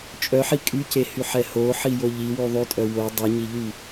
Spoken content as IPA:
t͡ʃʼ œ ħ i kʼ y c e h y ħ ɛ h o ħ i j o ʎ i w y ðˤ y tʼ œ w o dˤ i ɲ i ʎ y

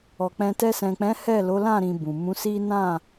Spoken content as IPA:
ɔ˨ k͡p ɛ̃˧ t ɛ˧ s ɛ̃˨ k͡p ɛ̃˨˦ h ɛ˦˨ l o˨˦ l ã˦˨ ɾ ĩ˧ b ũ˨ m ũ˨˦ s i˦ n ã˦˨

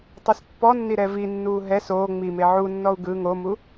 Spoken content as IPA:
tˤ u s pː ɔ nː i ɾ ɛ v i nː uː ɦ ɛ s oː ŋ͡m i m e ʕ u nː ɔ u̯ ɡ ɯ ŋ o m u

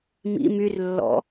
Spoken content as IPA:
m ḭ m y r lː ɔ̰

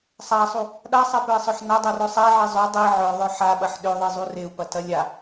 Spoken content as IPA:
sˤ a sˤ u | ɗ a sˤ ɛ p œ i̯ sˤ œ ħ n a dˤ u r œ sˤ ɛ ʕ i zˤ ø dˤ i ʕ œ ðˤ œ ħ a ɓ ɐ ħ ɗ ø ðˤ i zˤ u r e u̯ p ɐ t ɐ lʲ a

